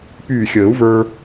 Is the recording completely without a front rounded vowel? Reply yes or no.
no